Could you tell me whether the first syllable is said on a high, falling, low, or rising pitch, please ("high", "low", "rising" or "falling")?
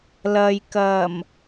low